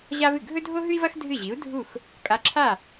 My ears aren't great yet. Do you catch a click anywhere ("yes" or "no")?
yes